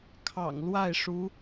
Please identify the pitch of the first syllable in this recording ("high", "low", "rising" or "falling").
low